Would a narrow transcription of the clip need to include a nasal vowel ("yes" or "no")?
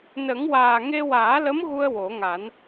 no